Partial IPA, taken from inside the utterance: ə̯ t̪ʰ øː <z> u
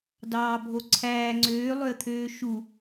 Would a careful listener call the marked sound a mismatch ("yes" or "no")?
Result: yes